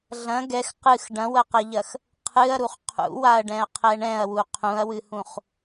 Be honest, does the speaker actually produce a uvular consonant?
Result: yes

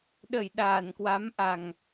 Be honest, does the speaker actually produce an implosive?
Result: yes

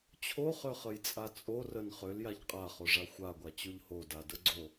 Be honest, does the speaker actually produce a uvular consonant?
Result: yes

